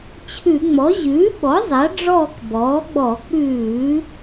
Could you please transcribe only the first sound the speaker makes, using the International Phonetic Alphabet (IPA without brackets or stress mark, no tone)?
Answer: t͡ɕʰ